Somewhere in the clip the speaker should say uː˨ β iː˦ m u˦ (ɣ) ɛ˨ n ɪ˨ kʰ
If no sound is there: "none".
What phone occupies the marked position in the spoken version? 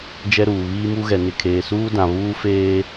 ɣ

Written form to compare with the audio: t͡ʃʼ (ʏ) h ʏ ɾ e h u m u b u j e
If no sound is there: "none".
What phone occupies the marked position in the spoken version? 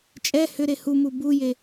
ɛ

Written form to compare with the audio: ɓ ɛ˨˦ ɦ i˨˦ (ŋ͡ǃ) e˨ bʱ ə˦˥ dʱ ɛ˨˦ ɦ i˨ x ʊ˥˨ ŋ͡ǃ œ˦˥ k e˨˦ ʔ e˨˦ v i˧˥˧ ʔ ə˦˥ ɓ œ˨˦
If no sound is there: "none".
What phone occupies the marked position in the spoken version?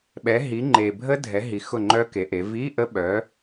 ŋ͡ǃ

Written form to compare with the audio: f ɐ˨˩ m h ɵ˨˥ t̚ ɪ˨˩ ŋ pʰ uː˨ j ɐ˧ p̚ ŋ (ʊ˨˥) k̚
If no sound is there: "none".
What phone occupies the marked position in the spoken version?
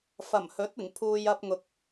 ʊ˨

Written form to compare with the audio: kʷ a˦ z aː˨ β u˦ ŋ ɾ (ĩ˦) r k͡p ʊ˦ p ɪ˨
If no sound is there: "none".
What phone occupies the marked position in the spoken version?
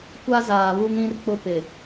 ĩ˦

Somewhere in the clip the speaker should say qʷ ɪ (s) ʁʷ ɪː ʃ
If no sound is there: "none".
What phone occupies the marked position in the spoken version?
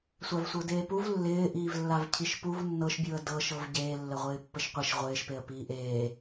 ʃ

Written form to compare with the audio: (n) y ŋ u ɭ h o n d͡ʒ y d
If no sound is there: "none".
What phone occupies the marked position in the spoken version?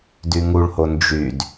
d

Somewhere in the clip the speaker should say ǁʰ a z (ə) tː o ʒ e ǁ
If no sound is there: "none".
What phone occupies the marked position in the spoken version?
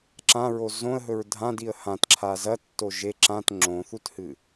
ɐ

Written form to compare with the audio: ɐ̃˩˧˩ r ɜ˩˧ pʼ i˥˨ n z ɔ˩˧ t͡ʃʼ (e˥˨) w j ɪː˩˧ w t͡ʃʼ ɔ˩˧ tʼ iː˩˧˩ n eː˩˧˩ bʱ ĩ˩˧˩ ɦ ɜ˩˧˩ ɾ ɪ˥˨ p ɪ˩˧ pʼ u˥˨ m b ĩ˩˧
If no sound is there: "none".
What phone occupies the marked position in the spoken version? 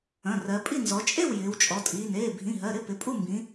e˥˨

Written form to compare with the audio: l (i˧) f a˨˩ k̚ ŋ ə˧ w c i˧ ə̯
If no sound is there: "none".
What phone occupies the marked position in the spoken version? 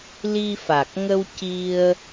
i˧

